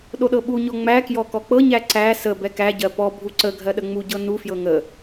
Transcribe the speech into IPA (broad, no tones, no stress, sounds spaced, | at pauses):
ɗ o ɗ ɤ ɓ u ɲ ɔ ŋ͡m æ k j ɔ k ɔ k͡p ɤ ɲ æ ǀ æ s ə b ɛ k æ ɟ ɜ p ɔ bʱ u ǀ ə ɡʱ ɜ ɗ ə ŋ͡m u ɟ ɤ n u f j ɤ ŋ ə